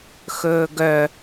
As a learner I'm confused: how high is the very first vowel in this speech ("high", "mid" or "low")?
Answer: mid